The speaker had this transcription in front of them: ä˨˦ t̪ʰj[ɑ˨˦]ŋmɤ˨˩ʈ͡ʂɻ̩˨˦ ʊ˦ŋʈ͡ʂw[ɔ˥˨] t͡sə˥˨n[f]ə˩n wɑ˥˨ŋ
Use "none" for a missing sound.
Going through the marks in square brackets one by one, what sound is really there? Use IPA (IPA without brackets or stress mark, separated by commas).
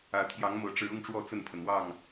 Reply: ɑ˨˦, ɔ˥˨, pʰ